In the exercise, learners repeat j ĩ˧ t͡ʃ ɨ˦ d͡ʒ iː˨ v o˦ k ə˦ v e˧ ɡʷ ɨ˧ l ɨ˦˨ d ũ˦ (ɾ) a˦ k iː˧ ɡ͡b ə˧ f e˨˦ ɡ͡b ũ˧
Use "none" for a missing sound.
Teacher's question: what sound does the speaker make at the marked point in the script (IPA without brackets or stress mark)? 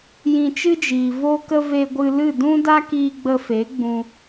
d